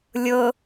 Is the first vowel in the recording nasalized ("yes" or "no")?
no